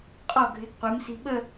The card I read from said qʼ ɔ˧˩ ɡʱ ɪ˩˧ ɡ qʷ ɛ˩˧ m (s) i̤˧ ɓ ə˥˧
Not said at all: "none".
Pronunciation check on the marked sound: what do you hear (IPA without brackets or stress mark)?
s